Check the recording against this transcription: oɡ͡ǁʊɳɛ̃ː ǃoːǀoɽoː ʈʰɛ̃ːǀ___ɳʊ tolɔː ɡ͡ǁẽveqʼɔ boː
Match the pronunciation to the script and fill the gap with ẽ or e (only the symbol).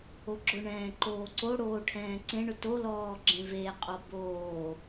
ẽ